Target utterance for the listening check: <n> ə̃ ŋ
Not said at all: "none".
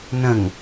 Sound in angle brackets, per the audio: n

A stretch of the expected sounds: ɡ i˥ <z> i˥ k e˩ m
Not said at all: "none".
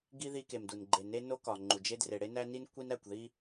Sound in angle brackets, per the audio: ð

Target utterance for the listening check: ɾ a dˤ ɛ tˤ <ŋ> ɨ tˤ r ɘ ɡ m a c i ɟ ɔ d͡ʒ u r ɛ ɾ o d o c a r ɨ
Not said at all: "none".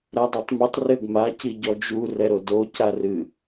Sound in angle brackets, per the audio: m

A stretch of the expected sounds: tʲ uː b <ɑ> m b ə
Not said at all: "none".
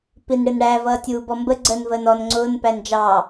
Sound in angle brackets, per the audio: ɔ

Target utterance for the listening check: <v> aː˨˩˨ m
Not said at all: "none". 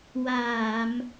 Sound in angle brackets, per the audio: w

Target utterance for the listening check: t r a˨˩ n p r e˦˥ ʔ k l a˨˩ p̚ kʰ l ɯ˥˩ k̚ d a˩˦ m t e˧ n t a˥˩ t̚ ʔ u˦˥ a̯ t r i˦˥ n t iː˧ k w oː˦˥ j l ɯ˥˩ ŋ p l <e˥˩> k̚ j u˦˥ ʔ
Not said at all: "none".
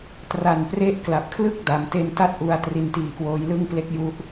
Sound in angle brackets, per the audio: e˦˥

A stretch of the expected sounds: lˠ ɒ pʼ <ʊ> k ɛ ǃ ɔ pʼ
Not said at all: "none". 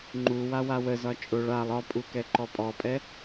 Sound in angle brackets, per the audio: u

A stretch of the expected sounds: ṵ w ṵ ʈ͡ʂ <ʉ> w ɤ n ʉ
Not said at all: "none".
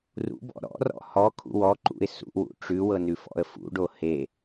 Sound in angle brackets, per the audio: ʉ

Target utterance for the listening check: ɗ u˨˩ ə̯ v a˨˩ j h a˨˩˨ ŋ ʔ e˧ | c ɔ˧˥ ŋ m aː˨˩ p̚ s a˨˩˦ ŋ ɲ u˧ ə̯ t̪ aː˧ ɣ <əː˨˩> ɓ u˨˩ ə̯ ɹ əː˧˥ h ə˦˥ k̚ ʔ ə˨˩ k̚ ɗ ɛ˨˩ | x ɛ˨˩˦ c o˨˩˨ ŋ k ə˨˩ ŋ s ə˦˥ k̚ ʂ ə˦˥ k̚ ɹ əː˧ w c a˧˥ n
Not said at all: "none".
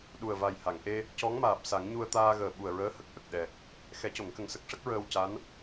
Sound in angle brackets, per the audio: əː˨˩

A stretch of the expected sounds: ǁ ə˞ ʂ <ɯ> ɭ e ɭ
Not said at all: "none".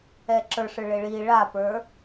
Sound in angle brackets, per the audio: ɯ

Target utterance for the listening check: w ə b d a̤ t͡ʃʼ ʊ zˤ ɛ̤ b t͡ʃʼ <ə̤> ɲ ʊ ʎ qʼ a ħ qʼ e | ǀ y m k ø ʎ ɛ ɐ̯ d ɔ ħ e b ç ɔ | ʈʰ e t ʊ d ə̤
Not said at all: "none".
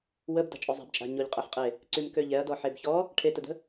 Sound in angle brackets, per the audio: a̤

